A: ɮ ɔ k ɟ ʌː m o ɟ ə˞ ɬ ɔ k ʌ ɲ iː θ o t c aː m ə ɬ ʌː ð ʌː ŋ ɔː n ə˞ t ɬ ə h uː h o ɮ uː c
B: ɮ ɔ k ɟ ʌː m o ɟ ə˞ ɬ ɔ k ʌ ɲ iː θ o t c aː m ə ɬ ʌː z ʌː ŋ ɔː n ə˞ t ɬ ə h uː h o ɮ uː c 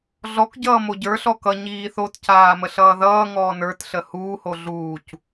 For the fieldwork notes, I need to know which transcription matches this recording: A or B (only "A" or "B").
A